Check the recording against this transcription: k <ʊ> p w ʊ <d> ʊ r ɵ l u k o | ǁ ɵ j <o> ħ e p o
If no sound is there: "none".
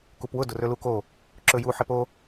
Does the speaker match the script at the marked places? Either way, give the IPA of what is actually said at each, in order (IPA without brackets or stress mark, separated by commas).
u, d, u